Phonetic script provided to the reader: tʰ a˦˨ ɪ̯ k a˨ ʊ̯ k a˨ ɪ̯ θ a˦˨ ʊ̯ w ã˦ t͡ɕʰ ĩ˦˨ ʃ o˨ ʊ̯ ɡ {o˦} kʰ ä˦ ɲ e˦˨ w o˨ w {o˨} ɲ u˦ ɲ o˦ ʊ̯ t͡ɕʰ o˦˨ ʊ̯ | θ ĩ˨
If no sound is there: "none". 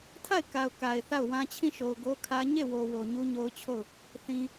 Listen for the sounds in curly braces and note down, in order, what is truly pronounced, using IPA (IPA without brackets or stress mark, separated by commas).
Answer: o˦, o˨